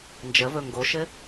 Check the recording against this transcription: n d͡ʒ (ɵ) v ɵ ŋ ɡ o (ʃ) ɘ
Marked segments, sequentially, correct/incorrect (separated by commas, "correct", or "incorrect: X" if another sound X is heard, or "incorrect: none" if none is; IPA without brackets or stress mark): incorrect: ə, correct